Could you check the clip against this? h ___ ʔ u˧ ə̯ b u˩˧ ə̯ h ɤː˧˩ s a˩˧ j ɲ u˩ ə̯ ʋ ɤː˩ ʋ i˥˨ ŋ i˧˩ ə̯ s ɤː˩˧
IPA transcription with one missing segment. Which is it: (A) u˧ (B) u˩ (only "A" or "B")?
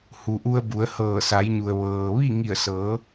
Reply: B